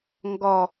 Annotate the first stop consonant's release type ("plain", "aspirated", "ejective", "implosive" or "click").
plain